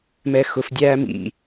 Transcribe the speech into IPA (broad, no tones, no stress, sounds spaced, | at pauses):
m ɛ x ʊ f dʲ æː m ḭ